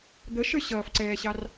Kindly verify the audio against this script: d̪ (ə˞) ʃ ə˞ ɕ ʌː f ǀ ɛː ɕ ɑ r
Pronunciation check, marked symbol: incorrect: ə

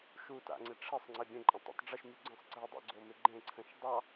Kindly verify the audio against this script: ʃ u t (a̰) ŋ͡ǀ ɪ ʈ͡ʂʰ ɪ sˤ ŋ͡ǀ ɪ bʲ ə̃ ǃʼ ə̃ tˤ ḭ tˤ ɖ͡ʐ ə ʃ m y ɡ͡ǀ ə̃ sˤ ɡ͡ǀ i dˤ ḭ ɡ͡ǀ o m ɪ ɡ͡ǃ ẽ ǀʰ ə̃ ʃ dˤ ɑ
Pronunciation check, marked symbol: correct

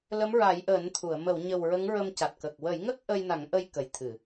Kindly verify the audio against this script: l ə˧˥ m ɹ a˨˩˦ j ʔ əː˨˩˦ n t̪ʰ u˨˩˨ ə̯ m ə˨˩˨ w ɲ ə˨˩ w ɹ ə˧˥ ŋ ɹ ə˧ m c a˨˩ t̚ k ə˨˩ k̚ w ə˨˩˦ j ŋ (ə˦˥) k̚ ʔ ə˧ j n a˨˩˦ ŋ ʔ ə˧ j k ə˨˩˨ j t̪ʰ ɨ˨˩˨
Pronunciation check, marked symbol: correct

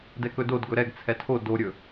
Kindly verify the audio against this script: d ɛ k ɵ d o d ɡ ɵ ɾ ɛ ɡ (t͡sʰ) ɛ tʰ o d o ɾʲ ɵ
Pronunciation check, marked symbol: correct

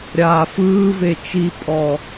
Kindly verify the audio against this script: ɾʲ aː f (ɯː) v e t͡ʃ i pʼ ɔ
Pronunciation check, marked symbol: correct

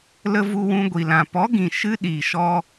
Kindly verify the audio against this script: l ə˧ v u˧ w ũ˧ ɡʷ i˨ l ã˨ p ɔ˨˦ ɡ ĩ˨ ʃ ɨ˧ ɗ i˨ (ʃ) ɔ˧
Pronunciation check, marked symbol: correct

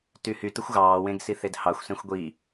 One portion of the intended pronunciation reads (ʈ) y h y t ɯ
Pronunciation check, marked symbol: incorrect: t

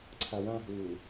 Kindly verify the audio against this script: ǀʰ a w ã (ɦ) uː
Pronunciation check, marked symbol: correct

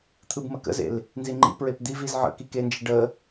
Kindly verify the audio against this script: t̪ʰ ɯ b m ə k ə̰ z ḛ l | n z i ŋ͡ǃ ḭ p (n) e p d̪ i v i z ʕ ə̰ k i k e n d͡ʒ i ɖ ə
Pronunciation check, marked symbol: incorrect: ɹ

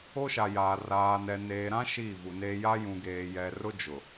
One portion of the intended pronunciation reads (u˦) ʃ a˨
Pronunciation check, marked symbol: incorrect: o˦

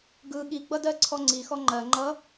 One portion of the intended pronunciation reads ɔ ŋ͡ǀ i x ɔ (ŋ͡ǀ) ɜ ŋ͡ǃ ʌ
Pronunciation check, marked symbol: incorrect: ŋ͡ǃ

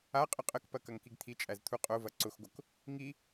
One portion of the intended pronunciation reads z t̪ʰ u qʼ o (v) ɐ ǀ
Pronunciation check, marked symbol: correct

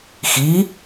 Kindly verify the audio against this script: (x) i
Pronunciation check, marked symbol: correct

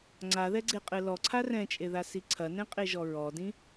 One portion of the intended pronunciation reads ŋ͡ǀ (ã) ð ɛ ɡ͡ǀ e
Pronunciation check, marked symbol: incorrect: a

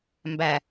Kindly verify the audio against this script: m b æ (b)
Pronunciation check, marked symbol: incorrect: none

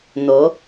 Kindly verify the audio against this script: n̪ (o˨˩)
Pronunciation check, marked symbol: incorrect: o˨˦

